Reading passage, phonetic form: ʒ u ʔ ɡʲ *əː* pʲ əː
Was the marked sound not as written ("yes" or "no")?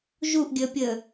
no